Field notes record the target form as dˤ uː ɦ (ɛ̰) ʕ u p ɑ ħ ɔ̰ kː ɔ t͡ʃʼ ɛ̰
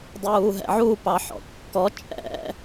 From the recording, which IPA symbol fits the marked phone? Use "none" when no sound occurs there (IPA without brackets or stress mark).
ɛ̰